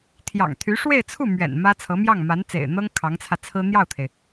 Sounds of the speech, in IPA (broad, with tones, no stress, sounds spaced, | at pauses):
t̪ʰ j ɑ̰˨˩ ŋ t̪ʰ y˧˥ ʂ w e˥˧ ɪ̯ t͡sʰ u˥˩ m ɥ ɛ̰˨˩ n m ä˥ t͡sʰ ɤ˧˥ m j ɑ˥˩ ŋ m a˧˥ n t͡s ḛ˨˩ ɪ̯ n̪ ɤ˥ ŋ kʰ ɑ˧˥ ŋ t͡sʰ ä˧ t͡sʰ ɹ̩˥ n̪ j ɑ˥˩ ʊ̯ t̪ʰ e˩ ɪ̯